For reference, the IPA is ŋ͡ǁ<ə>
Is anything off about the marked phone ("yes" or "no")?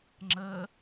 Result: no